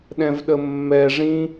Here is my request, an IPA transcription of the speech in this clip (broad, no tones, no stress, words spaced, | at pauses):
ɗɛ̃vɗəmːɛ ʐĩ